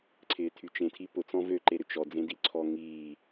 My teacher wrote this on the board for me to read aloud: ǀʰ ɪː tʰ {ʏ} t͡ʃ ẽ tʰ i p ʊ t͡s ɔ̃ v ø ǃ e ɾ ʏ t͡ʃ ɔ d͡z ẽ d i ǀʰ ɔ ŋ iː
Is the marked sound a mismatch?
yes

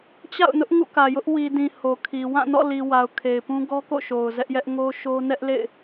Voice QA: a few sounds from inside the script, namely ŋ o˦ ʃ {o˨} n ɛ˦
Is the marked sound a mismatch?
yes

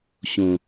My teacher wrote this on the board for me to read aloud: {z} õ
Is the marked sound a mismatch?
yes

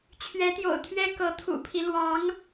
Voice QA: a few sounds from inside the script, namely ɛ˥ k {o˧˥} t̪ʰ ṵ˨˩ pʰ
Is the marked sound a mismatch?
yes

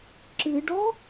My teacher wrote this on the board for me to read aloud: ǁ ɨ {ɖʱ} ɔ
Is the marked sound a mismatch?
yes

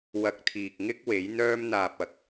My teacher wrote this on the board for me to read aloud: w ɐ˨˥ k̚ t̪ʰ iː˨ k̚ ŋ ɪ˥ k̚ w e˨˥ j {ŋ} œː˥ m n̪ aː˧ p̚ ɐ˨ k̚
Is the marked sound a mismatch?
yes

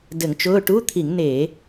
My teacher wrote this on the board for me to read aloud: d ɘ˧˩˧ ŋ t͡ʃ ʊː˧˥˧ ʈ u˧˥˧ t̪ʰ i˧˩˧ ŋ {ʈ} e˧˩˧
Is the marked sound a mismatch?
yes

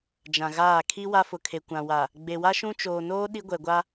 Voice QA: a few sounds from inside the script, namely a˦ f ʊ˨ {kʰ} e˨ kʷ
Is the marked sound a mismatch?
no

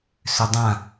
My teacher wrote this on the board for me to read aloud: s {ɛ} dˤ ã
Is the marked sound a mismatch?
yes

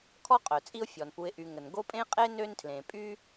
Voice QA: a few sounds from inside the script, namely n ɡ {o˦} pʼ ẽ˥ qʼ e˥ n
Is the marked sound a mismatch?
no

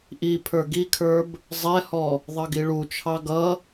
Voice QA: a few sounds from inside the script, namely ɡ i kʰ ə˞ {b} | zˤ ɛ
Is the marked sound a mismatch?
no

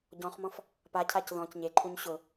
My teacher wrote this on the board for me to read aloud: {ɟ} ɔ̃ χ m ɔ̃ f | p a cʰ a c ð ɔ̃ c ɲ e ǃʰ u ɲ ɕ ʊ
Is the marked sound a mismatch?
no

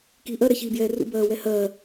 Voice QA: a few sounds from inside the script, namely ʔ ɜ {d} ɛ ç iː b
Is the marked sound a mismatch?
yes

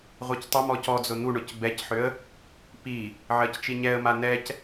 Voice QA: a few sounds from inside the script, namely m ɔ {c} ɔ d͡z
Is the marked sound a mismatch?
no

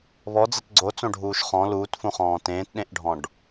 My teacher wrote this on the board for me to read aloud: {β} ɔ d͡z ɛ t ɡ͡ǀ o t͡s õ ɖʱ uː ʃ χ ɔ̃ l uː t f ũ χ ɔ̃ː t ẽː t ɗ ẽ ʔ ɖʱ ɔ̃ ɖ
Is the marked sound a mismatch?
no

